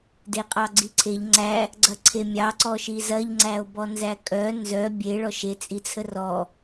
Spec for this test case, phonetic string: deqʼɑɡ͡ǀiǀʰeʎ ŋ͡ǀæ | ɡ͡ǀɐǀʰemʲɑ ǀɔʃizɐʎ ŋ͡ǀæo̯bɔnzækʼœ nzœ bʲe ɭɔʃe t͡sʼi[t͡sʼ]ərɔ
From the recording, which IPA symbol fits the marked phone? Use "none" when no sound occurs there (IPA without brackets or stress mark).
t͡sʰ